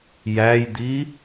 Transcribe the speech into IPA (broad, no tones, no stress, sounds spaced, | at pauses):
j æ j d̪ i